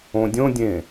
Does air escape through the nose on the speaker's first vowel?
yes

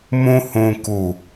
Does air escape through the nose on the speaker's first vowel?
yes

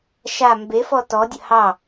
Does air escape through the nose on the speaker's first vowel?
no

